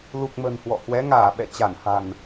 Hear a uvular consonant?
no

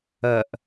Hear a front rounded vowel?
no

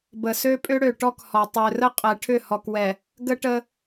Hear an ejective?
yes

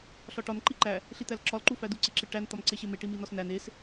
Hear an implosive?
no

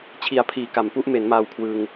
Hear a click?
no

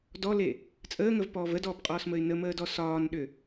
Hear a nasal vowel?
no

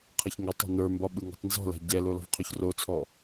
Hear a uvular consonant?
yes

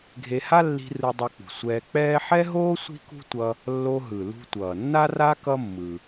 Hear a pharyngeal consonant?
yes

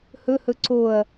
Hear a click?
yes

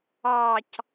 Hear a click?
no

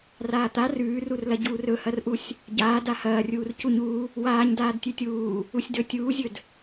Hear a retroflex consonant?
no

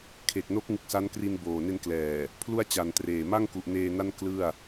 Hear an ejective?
no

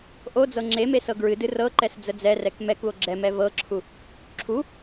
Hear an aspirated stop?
yes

